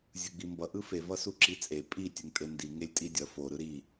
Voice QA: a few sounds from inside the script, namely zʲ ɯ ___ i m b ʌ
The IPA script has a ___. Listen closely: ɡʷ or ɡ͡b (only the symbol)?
ɡ͡b